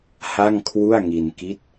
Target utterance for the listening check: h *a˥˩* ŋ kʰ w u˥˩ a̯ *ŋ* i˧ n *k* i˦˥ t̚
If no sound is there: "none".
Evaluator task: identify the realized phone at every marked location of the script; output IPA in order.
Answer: a˥˩, ŋ, k

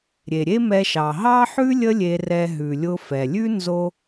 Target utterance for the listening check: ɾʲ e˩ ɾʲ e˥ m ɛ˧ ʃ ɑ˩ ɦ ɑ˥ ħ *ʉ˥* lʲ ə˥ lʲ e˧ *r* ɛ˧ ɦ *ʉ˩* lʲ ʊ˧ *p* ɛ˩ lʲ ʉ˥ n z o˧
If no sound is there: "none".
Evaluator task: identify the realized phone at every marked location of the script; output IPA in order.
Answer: ʉ˥, r, ʉ˩, f

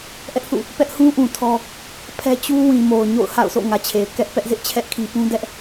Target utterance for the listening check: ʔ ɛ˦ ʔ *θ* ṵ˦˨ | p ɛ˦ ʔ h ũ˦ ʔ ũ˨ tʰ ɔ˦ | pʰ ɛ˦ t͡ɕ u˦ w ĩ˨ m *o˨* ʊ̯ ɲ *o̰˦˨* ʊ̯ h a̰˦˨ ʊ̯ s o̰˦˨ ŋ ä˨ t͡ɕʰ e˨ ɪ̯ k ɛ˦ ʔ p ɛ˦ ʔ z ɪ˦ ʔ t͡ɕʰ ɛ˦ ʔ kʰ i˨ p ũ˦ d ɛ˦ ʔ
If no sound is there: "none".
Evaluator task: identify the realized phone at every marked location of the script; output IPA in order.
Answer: θ, o˨, o̰˦˨

